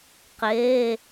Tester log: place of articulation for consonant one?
uvular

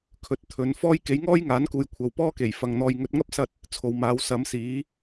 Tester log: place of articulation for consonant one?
velar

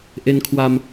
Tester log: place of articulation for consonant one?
glottal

